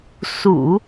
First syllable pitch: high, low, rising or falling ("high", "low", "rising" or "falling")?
low